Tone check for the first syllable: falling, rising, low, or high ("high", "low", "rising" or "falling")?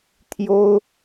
high